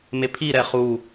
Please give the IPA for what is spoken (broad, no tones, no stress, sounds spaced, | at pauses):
m e pʰ i ɾ ɛ χ u